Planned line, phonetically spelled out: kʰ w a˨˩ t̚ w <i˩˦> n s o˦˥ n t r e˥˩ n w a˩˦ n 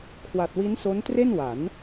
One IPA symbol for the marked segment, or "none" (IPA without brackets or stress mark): i˦˥